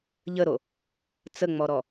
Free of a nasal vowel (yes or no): yes